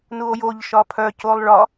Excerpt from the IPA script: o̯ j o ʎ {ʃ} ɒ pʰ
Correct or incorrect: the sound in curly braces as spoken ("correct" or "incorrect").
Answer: correct